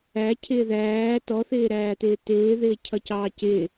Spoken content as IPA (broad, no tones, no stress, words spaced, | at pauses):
æcʰɪː ðæː tɔθɪːɾæːtɪː tɪːðɪːcʰʌcɑː cɪ